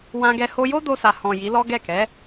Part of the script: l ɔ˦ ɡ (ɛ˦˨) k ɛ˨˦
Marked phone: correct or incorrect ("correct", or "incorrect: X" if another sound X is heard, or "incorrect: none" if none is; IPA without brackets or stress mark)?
correct